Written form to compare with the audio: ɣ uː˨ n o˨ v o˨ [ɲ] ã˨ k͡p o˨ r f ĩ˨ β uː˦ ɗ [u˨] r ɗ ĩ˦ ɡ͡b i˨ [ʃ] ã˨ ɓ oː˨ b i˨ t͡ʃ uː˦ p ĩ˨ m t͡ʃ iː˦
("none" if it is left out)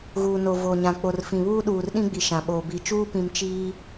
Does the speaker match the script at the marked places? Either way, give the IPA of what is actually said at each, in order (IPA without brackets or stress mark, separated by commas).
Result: ɲ, uː˨, ʃ